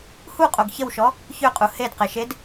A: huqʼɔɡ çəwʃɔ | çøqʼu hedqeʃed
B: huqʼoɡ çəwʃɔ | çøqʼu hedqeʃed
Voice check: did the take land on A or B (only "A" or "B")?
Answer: B